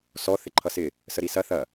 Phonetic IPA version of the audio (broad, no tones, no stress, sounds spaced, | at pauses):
s ɔ θ ɪ ǃʰ ʌ s ɪ | s ə ɾ i s ɐ θ ɐ